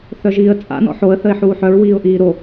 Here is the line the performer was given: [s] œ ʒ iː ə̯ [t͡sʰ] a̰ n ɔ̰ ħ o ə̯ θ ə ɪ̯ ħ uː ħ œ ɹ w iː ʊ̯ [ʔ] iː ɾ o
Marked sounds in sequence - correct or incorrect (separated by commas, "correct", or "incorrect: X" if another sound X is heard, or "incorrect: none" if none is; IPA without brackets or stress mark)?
incorrect: θ, incorrect: t͡sʼ, correct